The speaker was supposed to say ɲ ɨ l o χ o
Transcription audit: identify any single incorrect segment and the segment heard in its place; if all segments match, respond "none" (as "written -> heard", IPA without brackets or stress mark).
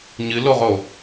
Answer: χ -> ʁ